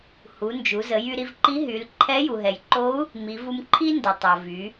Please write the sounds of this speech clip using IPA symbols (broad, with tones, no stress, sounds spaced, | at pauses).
h u˩˧ n d͡ʒ u˩˧ z ə˩˧ j y˧ ɾ i˧ v ǃ i˧˥ ɦ y˩˧ l ǃʰ ɛ˧˥ j u˩ ɦ ɛ˩ j ǃ o˧˥ u̯ | m i˩˧ v u˧ m ǃʰ i˥ n d ə˩ tˤ o˩ v y˩˧